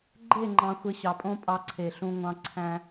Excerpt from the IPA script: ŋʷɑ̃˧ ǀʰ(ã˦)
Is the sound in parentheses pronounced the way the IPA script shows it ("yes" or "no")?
no